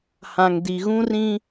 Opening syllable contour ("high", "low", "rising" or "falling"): low